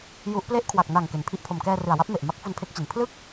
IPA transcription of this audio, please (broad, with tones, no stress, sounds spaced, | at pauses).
j u˦˥ ʔ p l e˦˥ ʔ kʰ w a˨˩ k̚ n a˨˩ ŋ k e˩˦ n pʰ i˦˥ ʔ pʰ o˨˩ m k ɛː˧ r ɯ˨˩ a̯ w a˦˥ p̚ m e˨˩ ʔ m a˦˥ k̚ f u˧ n pʰ e˦˥ k̚ t͡ɕ i˨˩ n pʰ l ɯ˥˩ k̚